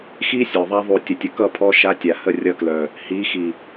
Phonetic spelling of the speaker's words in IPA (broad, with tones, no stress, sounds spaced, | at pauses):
x i˦ sʲ œ˨ ðˤ a˦ ðˤ u˦˨ tʲ ə˧ tʲ ə˧ k ʌ˦˨ pʰ ɔ˧ ʃ a˧ tʲ a˨ h ə˦˨ rʲ ʌ˧ k l œ˨ | h i˨˦ x i˨